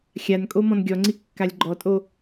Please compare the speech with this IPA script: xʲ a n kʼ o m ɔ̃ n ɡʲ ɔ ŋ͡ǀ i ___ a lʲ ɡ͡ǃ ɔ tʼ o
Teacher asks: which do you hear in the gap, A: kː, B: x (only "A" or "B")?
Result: A